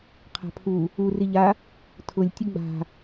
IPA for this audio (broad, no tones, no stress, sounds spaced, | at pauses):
qʰ a̤ pʰ u | u r i ʎ a | tʰ ʊ lʲ tʲ ʊ ɡ͡b a̤